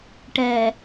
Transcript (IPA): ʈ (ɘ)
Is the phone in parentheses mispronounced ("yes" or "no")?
yes